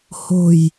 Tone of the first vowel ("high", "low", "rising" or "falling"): low